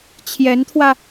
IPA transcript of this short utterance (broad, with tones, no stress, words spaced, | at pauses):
t͡ɕʰjɛ˧˥nt̪ʰwä˧